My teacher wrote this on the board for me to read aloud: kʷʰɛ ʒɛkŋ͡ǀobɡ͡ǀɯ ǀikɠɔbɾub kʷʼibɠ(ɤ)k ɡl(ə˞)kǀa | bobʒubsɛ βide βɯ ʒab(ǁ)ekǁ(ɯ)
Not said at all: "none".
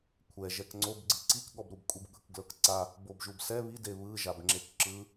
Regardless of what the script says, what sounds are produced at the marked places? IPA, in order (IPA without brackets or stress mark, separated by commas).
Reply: ɯ, ɤ, ŋ͡ǁ, ɯ